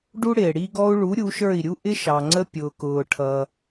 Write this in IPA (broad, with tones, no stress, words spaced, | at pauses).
ɖu˥ɽɪː˩ ɽi˧ɡɔ˧u̯ɭu˩˥ ɾʲu˩˥ʃə˞˥˩i̯ɾʲu˥ʔɪ˥ ʃɑ˩ŋ͡ǀə˧ pʲʊː˩kʊː˩ʈʰʌ˩